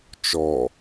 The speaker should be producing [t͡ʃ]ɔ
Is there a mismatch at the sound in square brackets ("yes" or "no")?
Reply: no